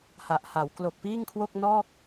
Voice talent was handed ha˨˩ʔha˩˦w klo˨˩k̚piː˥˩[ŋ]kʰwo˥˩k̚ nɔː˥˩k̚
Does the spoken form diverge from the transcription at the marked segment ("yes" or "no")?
no